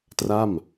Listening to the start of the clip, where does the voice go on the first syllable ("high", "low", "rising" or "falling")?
falling